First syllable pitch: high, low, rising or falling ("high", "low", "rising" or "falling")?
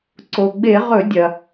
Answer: low